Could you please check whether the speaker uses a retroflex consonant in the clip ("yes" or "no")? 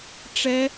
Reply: yes